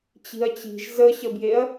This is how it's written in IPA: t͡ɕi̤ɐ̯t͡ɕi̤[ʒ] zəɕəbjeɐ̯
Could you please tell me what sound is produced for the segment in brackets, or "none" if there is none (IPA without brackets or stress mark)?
ʒ